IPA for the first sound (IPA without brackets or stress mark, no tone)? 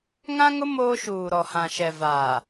ŋ